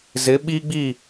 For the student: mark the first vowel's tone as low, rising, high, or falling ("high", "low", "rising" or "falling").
rising